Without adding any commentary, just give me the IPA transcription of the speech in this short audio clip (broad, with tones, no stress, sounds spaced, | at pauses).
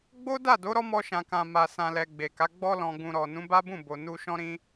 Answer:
ɡ͡b o˦ d a˦˨ d o˨˦ ɾ ɔ˦ m ɔ˧ ʃ ã˨ k ã˨ m a˨ s ã˨ l ɛ˨ ɡ͡b e˨ k a˨˦ ɡ͡b ɔ˧ l ɔ̃˨ ɡ ũ˨ ɾ ɔ˨ n ũ˨˦ b a˦ b ũ˦˨ b o˨ n u˧ ʃ ɔ̃˦ ɾ ĩ˧